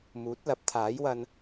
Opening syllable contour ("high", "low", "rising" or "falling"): rising